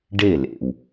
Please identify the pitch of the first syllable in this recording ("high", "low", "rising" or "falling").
falling